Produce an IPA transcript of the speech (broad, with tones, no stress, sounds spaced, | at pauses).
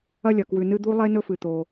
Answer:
ɐ˥ lʲ ɐ˩ k w ʉ˨ n ɨ˦ d̪ u˥ lˠ e˥ n ɵ˦ f ɨ˩ t̪ o˩